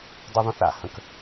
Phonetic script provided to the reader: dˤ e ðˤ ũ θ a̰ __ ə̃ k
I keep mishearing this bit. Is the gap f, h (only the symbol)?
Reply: h